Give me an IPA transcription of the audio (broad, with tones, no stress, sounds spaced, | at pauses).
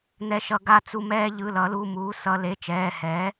n̪ ɛ˧ ʃ ʌ˧ ɡ a˧ t͡s u˧ m ɛː˧ ʎ ɯ˩˧˩ l ʌ˨˩˦ l u˩˧˩ m uː˩˥ s ʌ˧ l e˩˧˩ t͡ʃ ɛː˩˧˩ h ɛː˩˥